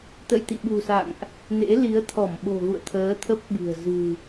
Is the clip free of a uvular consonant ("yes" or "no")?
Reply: yes